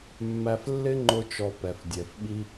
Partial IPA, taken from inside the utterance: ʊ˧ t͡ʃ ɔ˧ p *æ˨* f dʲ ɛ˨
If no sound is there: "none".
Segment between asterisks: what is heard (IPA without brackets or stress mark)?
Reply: ɛ˨